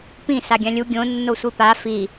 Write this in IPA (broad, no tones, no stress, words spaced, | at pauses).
pĩ saɡʲãlʲu ɡʲõ nːosʷipa fi